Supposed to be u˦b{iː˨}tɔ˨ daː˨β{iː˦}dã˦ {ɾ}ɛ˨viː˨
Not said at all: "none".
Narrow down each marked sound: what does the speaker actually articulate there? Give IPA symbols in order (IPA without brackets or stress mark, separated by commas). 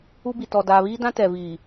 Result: i˨, iː˦, t